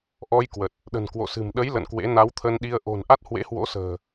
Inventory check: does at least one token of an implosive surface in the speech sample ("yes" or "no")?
yes